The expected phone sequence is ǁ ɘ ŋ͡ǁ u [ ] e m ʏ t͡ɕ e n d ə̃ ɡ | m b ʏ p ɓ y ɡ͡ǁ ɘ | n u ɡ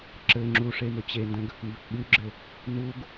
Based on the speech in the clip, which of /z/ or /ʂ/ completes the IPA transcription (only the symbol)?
ʂ